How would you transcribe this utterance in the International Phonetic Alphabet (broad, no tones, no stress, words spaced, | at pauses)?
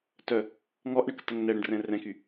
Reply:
tœ | ŋɔʔɳəktəŋ nɛɽə̃ɖrɛ̃ rɛ̃ky